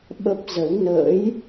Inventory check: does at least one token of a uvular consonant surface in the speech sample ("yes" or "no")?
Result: no